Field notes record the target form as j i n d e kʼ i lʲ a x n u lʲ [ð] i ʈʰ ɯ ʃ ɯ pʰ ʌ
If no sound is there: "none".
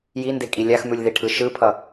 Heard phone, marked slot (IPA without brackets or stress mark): ð